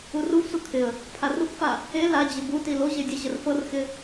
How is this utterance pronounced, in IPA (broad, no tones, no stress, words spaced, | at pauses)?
uruvsu kʰɪə̯ | pʰarukfa | e lad͡ʑɪ buti loʑe dʲəʑər fɤrxɪ